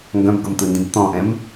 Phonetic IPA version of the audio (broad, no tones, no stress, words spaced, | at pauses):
ŋɡœ̃bɡɤmt̪ɯndĩb t̪ɔ̃ʔɛ̃m